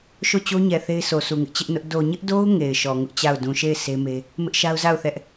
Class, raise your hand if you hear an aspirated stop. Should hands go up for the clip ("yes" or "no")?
no